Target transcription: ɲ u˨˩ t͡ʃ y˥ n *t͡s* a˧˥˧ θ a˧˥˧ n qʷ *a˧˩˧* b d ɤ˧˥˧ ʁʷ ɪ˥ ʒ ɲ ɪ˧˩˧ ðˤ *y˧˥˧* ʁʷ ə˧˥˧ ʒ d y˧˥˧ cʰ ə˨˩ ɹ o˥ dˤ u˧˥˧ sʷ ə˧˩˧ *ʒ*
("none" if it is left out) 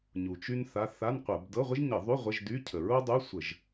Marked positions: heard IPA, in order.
θ, ə˧˩˧, y˧˥˧, ʒ

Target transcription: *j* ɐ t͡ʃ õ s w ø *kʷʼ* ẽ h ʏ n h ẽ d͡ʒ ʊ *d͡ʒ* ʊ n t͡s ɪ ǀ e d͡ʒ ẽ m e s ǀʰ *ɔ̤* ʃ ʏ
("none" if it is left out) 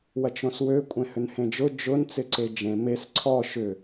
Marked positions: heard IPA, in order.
w, kʷʼ, d͡ʒ, ɔ

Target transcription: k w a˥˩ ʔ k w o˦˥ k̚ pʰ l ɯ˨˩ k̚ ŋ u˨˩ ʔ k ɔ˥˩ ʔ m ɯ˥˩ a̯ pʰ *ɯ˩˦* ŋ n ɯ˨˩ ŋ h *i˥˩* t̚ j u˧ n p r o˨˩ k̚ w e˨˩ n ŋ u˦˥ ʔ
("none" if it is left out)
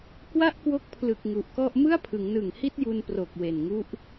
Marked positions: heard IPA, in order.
ɯ˩˦, i˥˩

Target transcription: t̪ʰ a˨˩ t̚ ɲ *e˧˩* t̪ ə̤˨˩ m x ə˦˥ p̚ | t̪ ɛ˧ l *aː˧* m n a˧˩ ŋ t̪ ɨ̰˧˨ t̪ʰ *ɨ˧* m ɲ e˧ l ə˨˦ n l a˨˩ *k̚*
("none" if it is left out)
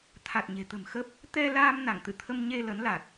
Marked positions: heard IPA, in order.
e̤˨˩, aː˧, ə˧, t̚

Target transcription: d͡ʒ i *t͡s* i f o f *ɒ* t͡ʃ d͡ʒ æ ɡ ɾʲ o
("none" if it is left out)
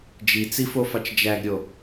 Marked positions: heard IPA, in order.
t͡s, ɑ

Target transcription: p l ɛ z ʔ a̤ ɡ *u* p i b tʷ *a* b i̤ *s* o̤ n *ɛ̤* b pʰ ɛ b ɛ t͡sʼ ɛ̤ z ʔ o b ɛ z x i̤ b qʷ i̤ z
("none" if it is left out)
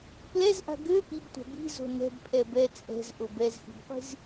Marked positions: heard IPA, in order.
ø, a̤, z, ɛ̤

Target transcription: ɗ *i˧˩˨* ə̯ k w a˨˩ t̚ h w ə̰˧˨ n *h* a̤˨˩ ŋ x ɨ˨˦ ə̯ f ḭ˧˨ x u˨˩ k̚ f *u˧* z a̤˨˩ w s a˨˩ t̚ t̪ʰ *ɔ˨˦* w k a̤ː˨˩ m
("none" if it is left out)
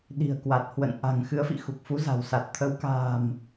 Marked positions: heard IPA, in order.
i̤˨˩, ʔ, u˨˦, ə˨˦

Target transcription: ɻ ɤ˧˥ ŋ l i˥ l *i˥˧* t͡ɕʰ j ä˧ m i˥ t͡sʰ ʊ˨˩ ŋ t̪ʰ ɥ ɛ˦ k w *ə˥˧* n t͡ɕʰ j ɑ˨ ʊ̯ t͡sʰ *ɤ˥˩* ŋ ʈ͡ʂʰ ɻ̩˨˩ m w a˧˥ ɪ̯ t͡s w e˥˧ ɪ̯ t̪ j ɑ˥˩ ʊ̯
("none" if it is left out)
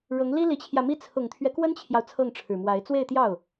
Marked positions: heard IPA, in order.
i˧˥, ə˥, ɤ˥˩

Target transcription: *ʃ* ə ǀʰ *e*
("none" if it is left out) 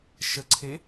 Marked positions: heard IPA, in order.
ʃ, e

